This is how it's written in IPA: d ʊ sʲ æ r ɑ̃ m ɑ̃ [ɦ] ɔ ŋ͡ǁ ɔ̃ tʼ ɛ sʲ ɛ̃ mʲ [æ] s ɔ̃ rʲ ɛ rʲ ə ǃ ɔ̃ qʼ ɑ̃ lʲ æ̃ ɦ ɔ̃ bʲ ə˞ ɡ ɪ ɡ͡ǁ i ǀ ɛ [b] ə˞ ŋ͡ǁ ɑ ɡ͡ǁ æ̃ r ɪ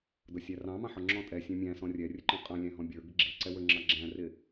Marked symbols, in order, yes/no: no, no, no

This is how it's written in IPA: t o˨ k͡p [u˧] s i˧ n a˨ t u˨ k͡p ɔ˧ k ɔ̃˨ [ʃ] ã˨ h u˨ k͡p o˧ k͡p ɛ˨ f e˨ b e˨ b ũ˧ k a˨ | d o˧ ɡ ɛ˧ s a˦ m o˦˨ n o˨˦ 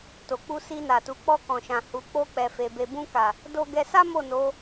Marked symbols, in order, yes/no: yes, yes

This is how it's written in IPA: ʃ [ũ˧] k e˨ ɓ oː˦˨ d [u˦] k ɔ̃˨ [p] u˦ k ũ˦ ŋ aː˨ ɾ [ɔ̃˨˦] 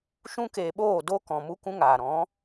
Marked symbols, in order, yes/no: yes, no, no, yes

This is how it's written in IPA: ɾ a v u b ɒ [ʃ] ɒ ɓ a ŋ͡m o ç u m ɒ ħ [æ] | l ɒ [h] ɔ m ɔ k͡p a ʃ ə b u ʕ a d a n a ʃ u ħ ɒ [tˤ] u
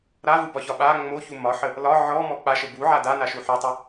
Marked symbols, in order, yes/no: no, no, no, yes

